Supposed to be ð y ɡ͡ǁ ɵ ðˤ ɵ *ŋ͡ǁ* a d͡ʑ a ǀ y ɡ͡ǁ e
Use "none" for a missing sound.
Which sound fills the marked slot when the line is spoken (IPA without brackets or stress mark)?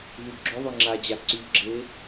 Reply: ŋ͡ǁ